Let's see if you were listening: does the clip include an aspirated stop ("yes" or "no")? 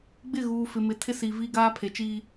yes